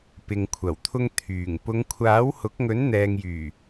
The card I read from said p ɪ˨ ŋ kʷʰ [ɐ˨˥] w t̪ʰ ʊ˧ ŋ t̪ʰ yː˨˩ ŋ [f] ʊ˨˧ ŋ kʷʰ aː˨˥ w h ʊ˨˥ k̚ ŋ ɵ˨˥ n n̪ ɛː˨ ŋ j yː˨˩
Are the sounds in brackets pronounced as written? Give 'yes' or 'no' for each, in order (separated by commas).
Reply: no, no